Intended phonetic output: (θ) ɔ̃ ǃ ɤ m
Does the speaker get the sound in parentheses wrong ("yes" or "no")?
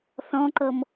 no